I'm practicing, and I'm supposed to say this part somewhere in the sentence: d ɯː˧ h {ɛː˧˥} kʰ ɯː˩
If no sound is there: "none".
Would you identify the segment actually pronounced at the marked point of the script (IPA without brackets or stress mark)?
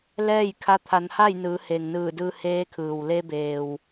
eː˧˥